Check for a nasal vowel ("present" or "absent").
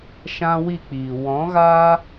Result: present